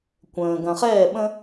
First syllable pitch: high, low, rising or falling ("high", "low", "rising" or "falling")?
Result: low